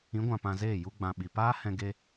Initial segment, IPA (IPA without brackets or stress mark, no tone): ĩ